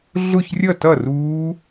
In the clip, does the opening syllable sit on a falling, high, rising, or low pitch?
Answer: falling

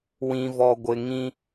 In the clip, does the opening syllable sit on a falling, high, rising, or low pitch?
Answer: low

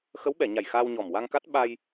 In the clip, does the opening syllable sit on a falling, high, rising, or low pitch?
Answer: rising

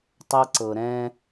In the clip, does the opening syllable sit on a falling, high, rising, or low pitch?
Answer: high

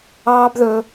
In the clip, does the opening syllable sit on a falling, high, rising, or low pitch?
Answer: high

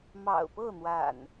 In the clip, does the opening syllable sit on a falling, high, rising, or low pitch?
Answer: low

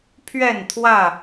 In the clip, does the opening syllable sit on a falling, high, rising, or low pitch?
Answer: falling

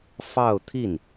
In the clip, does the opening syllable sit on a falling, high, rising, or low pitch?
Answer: falling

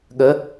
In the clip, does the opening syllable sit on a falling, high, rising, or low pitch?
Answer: rising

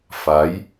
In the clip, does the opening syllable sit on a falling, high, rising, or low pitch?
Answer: rising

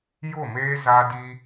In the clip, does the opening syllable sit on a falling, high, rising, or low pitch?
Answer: falling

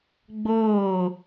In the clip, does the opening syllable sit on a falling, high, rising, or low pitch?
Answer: falling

